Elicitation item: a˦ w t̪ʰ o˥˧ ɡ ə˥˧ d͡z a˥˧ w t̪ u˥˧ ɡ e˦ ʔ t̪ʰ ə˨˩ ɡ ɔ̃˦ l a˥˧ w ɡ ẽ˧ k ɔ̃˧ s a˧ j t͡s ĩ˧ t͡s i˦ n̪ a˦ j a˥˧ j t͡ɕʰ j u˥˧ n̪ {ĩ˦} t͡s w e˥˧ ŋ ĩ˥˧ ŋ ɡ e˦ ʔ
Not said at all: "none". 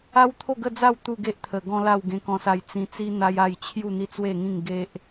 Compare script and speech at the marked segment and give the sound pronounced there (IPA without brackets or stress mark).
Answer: i˦